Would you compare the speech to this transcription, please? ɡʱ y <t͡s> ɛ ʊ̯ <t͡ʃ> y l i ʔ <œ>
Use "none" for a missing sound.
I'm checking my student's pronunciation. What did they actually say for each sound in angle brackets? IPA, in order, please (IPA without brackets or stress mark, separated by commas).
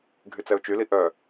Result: t͡s, t͡ʃ, œ